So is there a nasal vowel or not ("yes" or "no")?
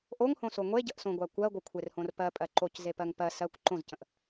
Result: yes